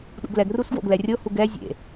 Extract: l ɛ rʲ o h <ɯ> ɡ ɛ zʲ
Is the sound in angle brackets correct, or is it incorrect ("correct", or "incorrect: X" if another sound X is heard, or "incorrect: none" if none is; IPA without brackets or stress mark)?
incorrect: u